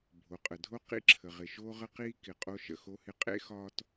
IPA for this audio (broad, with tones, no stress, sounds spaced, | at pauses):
bʱ o˩ qʼ ə˩ dʱ o˥ q ḭ˥ ǁʰ ə˩ ʁ ɪ˩ ʃ oː˥ ʁ ə˥ q iː˥ k ɪ˩ qʼ o˥ ʃ ə̰˩ x o˥ h ɪ˥ qʼ ḛ˥ x ɒː˥ t